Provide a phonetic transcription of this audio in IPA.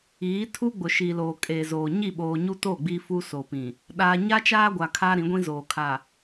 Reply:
iː˨˦ tʰ u˦ ɡ͡b ʊ˨ ʃ i˨ l oː˨ kʼ eː˨ z oː˨ ɲ i˦˨ ɓ oː˨ ɲ u˦ t o˦˨ ɡ͡b i˦ f u˦ s oː˨ p ĩ˨ | ɗ aː˦ ɲ a˦ t͡ʃ aː˦ ɡʷ a˨ kʰ aː˦ ɾ ĩ˨˦ ɡʷ ĩ˦ z oː˨ kʰ a˨

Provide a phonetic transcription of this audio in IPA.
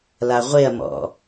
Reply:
l a ʁʷ e ɐ̯ m ɔ̰

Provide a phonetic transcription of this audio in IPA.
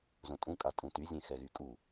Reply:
z õ tʼ ũ kʼ a tʼ ũ t y zʲ ẽ x ɛ ɣ y kʼ u

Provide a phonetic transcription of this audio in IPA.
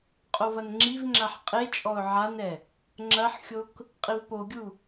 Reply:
qʼ o v ɐ n ŋ͡ǁ i v ŋ͡ǁ a ħ qʼ e t͡ʃʼ ɔ ʊ̯ ʕ a n ɛ | ŋ͡ǁ ɐ ħ xʲ o k | qʼ i v p o ɡʲ u

